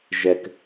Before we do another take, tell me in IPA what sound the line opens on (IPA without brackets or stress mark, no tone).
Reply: ʒ